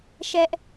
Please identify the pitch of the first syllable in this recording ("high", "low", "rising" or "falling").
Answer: high